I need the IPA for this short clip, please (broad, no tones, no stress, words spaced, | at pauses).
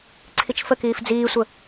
ǀʰit͡ʃfəkiːf d͡ziːsʷə